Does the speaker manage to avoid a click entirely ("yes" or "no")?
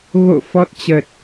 yes